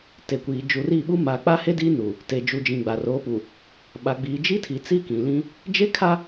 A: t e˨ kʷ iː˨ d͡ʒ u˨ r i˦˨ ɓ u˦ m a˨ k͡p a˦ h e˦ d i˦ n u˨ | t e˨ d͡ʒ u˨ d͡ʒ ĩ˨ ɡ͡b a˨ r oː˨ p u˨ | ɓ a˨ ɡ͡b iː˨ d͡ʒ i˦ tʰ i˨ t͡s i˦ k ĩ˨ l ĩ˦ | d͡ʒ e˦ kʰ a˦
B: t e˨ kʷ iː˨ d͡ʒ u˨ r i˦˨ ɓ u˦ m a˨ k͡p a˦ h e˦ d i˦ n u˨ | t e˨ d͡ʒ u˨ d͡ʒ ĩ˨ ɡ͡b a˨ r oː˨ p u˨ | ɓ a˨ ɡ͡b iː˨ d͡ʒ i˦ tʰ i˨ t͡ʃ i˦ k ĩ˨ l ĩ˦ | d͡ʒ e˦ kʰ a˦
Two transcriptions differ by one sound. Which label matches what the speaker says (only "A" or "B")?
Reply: A